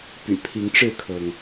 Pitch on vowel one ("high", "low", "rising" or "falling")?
low